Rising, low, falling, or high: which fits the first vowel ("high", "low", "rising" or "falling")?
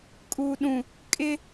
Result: low